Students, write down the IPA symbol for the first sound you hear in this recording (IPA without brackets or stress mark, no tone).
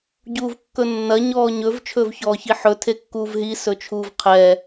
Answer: ɟ